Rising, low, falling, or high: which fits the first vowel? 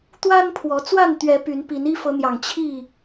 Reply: high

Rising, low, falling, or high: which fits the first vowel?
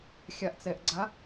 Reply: low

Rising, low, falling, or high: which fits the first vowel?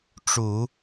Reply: low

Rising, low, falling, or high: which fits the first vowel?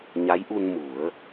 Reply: rising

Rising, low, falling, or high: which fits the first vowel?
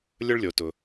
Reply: high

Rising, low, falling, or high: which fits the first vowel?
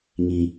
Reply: low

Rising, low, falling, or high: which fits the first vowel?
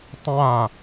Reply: falling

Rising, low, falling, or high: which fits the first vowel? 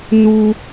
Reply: high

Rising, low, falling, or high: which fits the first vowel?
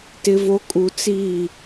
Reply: low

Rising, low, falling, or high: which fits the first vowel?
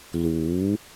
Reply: rising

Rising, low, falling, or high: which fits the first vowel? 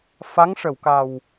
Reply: rising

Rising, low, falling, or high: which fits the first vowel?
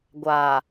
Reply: low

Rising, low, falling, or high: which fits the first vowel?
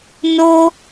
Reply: high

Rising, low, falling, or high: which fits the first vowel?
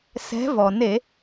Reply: rising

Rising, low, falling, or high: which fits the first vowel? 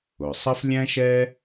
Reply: low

